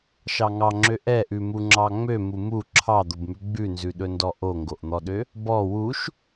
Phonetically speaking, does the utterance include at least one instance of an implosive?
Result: yes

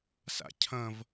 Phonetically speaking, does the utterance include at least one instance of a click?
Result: no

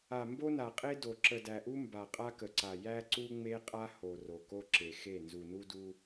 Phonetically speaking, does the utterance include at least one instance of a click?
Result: yes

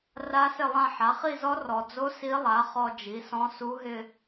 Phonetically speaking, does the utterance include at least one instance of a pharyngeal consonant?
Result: yes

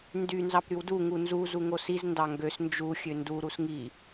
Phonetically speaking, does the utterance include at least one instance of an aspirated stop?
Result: no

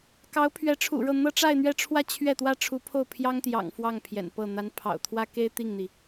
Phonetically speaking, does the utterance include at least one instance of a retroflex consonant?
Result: yes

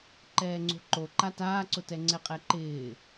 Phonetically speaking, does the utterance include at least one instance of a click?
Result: yes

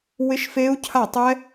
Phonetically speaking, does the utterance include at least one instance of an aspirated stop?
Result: yes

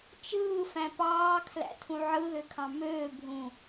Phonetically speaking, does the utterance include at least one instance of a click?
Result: no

